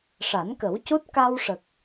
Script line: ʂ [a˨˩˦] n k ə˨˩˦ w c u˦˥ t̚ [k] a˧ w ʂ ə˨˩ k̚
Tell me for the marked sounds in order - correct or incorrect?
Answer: correct, correct

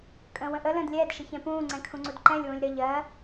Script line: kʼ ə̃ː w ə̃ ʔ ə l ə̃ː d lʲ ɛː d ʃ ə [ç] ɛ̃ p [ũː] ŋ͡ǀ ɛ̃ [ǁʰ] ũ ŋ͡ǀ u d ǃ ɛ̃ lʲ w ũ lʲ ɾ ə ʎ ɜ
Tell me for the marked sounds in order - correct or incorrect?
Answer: correct, correct, incorrect: kʰ

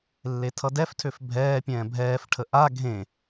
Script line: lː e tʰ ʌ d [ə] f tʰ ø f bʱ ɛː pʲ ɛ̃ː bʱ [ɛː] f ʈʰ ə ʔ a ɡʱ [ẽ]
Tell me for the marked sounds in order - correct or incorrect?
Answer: incorrect: ɛ, correct, correct

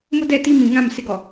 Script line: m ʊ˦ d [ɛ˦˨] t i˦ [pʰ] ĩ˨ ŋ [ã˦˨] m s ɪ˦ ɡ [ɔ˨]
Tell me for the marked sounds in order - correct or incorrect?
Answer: correct, incorrect: m, correct, correct

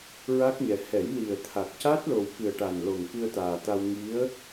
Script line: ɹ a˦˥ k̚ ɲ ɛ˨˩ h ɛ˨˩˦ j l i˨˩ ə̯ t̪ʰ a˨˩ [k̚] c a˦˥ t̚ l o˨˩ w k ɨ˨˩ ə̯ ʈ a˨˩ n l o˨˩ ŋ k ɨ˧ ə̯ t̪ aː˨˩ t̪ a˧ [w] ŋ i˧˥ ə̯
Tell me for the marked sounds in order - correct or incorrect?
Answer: correct, correct

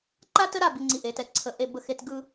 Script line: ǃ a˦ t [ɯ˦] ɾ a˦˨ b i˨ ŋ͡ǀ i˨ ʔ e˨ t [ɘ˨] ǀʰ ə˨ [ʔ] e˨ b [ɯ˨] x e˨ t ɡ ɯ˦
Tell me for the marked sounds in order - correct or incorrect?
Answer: incorrect: ə˦, incorrect: ɛ˨, correct, incorrect: ə˨

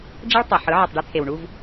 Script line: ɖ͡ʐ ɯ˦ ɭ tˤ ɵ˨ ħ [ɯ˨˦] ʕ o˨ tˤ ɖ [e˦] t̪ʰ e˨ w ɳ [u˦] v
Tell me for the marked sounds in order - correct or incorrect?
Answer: correct, correct, correct

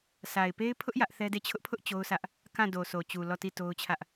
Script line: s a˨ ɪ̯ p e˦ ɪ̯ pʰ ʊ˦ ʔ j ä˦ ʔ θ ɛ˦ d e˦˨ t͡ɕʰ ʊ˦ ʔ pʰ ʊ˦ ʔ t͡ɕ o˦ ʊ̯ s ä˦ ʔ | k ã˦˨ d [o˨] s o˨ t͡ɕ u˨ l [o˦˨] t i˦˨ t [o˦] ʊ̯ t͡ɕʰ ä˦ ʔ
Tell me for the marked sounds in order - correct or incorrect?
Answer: correct, incorrect: ɔ˦˨, correct

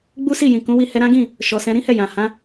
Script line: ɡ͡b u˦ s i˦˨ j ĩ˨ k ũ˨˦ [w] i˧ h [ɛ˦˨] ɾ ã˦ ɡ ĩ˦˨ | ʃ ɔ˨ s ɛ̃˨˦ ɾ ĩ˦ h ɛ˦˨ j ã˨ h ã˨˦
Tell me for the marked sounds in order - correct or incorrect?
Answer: correct, incorrect: ɛ˧

